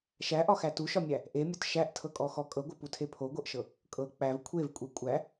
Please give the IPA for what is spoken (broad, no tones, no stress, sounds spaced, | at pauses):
ʃ æ ʔ ɒ x æ t u ʃ ɒ mʲ æ | ʔ e mʲ ɒ t ʃ æ ʔ tʰ ɤ kʼ ɔ x ɔ kʼ ɤ ɡʷ ɤ p u tʰ e pʰ o ɡʷ ɤ ʔ ʃ ɤ | kʼ ɤ k͡p æ v kʷʰ e v kʷʼ e kʷʼ æ